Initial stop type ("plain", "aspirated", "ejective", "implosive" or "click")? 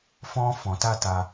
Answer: plain